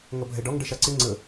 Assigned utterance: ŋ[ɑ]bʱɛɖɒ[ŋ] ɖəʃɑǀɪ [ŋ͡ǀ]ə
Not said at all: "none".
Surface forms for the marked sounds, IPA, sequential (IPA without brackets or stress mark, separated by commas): ʌ, ŋ, ŋ͡ǀ